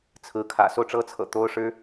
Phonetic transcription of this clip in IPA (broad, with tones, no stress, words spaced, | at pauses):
t͡sʰɹ̩˧˥kʰä̰˨˩ so˥˩ʊ̯ʈ͡ʂɤ˥t͡sʰɤ̰˨˩ t̪o˥ʊ̯ʂɻ̩˥